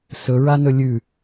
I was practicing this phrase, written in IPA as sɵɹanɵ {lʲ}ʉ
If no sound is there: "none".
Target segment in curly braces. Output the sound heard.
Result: lʲ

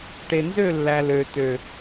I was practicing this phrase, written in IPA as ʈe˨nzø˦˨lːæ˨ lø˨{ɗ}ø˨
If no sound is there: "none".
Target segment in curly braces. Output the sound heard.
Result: t̪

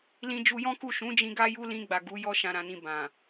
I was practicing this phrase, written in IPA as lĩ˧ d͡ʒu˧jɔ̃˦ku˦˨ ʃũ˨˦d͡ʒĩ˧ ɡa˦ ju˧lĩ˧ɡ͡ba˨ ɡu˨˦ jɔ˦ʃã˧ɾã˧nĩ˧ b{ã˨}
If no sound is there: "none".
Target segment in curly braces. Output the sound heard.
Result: ã˨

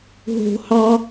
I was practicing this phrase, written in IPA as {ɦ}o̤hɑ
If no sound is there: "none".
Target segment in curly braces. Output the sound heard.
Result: ɦ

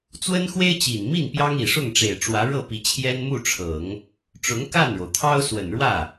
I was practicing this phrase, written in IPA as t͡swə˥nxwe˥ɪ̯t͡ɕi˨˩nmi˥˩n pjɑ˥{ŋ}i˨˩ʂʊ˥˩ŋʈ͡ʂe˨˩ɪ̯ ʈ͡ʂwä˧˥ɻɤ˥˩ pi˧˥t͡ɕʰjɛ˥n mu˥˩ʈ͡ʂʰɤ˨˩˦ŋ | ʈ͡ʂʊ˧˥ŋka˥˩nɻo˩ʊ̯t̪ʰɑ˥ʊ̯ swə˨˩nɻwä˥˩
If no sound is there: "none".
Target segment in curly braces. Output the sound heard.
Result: ŋ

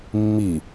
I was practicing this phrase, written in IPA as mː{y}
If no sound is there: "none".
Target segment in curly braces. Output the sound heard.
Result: i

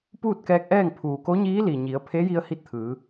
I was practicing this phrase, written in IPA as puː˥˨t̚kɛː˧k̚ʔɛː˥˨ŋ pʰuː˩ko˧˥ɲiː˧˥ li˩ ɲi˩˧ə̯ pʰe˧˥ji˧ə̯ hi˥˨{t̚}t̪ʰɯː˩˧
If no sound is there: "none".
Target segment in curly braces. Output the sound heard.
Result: t̚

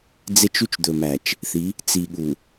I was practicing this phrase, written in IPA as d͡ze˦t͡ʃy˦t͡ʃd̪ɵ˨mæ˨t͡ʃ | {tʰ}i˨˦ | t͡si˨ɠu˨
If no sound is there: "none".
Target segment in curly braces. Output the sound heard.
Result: θ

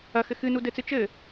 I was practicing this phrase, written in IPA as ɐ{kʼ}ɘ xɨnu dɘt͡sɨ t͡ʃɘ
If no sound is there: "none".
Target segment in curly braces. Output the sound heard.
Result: x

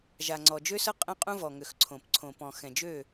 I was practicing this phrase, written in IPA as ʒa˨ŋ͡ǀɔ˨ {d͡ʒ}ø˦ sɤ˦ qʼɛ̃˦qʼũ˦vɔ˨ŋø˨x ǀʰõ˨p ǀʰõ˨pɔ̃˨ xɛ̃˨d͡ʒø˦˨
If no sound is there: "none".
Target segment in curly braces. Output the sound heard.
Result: d͡ʒ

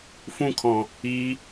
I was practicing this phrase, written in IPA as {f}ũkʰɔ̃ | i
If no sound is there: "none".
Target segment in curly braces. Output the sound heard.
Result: f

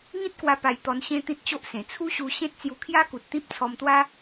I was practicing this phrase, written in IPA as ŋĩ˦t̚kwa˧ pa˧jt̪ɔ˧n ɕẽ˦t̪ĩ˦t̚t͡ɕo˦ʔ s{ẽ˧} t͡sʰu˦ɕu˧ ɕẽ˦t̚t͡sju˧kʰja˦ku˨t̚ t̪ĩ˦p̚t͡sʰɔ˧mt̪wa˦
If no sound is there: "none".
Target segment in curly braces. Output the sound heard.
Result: ẽ˨˩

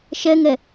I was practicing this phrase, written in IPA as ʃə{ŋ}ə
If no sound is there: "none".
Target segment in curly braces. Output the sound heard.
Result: ŋ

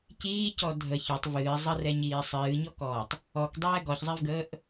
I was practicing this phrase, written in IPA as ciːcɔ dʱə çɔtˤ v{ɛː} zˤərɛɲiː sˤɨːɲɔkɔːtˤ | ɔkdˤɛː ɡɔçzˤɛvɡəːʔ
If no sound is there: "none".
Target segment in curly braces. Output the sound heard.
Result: ɨː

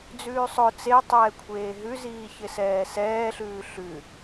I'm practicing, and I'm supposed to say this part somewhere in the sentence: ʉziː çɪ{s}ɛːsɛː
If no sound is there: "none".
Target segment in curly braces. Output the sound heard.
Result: s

